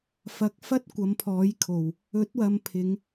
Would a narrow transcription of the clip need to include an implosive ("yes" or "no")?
no